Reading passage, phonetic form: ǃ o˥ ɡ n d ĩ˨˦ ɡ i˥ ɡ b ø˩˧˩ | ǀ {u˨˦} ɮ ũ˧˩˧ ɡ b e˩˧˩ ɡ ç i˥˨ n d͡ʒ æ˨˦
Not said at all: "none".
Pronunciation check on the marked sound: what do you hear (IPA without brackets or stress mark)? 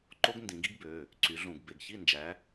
y˨˦